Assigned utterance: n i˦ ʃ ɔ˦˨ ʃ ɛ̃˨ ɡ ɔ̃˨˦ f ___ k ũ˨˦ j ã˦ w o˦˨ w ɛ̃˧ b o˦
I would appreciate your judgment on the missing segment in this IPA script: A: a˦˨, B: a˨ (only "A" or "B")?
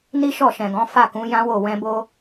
A